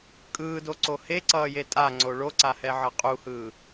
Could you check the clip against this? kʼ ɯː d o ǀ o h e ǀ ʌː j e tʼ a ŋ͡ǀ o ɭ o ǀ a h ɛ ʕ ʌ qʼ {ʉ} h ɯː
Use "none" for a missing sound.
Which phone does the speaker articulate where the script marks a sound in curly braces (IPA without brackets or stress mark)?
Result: u